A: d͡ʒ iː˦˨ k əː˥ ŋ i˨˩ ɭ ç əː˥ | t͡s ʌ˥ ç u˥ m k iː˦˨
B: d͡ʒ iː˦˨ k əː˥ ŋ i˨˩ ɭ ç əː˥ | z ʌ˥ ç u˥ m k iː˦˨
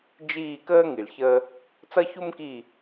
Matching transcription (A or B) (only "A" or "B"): A